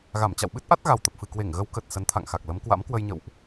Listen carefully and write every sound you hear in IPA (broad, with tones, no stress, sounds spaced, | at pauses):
ɣ a˧˩ m t͡ɕ a̰˧˨ w ɓ ɨ˦˥ t̚ ʔ a˦˥ t̚ ɣ a˨˩ w t̪ ə˨˩ p̚ f ɨ˨˩ k w e˧˩ ŋ ɣ ə˨˦ w k ə˨˩ t̚ s ə˨˦ n t̪ʰ a̰˧˨ ŋ x a˨˩ k̚ l ə˨˦ m k w a̰˧˥ m k w ə˧ j ɲ ə̰˧˨ w ʔ